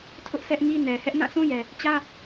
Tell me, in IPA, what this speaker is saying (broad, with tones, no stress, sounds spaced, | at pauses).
tʰ ʊ˦ ʔ s ɛ˦ ʔ ŋ i˦ n ɛ˨ h ɛ˦ ʔ n ã˦˨ sʰ ũ˦ j ɛ˨ | t͡ɕ ä˦